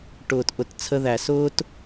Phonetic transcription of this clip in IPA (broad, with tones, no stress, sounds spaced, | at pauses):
ʈ ʊː˨ t ʔ ʊ˨ t t͡sʰ ə˦ ð æ˨ s ʊː˦ t